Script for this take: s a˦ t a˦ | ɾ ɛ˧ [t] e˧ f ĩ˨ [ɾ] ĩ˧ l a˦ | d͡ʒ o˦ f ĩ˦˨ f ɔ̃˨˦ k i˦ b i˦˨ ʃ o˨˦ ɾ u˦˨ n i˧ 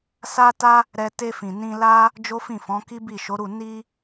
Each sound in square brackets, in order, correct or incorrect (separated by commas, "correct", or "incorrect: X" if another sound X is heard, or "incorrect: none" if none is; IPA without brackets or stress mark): correct, incorrect: n